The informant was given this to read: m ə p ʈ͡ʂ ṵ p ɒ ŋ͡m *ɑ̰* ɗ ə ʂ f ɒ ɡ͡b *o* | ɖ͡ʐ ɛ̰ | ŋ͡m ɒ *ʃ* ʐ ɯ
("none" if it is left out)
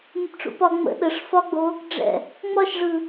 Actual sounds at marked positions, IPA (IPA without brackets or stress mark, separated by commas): ə̰, o, ʃ